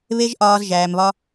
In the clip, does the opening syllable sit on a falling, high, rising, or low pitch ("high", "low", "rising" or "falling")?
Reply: high